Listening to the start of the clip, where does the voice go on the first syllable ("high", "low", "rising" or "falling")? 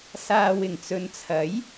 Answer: low